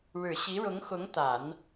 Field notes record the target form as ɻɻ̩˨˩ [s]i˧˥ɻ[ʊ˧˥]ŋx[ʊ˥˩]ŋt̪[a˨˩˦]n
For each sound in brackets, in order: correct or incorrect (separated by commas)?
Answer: incorrect, correct, incorrect, correct